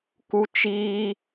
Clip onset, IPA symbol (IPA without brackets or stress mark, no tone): k